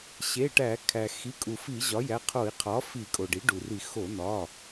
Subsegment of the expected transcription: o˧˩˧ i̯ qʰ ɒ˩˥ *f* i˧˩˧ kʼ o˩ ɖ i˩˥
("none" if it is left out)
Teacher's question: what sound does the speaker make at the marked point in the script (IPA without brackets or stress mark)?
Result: f